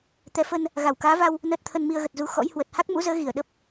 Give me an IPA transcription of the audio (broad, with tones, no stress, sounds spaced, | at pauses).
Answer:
t̪ ɛ˨˦ f ə˧ n | ɣ a˧˩ w k aː˨˦ v a˧ w | n əː˦˥ t̚ t̪ʰ ə˧ n m i˧ ə̯ ɣ ə˨˩ t̚ z u˧ x ɔ̰˧˥ j h w ə˨˩ t̚ h a˦˥ k̚ m ṵ˧˥ z əː˨˦ ɣ i˧˩ ə̯ ɗ ə˦˥ p̚